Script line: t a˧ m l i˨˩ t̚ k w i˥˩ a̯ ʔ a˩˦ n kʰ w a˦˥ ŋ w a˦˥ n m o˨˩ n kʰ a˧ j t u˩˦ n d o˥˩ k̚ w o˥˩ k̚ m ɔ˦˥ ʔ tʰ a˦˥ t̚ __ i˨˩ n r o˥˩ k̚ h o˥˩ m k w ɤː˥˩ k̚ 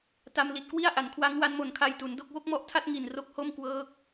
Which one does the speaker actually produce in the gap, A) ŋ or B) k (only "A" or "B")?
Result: A